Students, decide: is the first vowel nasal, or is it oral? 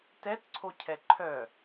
oral